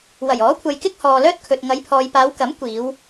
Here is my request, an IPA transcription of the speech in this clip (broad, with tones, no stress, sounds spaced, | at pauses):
w ɐ˨˩ j ɔː˨˥ kʷʰ ɐ˨ j k ɪ˥ k̚ h ɔː˨ l œː˥ t̚ kʰ ɵ˨ t̚ ŋ ɐ˨˧ j pʰ ɔː˨ j p aː˨˧ w k ɐ˨˥ m kʷ iː˨˧ w